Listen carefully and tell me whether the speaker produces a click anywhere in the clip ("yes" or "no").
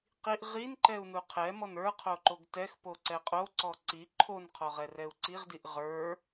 yes